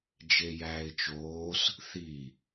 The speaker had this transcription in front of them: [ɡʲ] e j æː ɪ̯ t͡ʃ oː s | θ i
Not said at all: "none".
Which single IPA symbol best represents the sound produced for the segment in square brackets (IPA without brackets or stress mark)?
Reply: d͡ʒ